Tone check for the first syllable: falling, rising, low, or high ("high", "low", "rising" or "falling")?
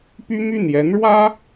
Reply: high